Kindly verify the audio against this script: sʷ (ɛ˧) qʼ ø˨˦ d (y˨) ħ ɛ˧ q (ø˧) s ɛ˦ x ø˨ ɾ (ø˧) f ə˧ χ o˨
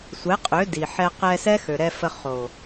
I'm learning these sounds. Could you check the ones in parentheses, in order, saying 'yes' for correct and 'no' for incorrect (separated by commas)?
no, no, no, no